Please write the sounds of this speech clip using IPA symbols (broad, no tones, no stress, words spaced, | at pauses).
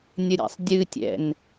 nʲəɾʲɛ̰sˤdʲɨtʲɛ̰n